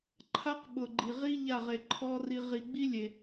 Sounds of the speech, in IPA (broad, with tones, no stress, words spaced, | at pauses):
ǃʰa˦qɓʊ˨ɡ͡ǃi˨ʁi˦ ʎa˦˨ʁe˨ǃʰɔ˦ri˧ ʁi˨ɡ͡bi˦lʲe˨